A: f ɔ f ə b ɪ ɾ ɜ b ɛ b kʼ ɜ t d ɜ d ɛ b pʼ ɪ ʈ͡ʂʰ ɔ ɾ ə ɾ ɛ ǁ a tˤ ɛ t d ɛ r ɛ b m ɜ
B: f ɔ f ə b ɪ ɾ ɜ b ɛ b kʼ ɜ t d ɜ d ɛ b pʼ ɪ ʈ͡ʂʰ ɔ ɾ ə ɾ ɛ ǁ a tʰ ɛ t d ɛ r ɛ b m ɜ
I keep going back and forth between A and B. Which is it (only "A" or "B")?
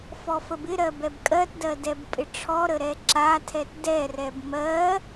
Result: B